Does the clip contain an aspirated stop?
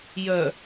no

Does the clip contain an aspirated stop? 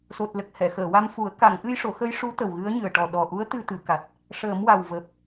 no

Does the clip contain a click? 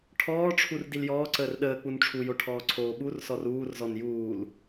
yes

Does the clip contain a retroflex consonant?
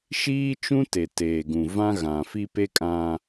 no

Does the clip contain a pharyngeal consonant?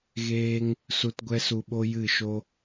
no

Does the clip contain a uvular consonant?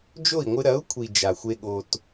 no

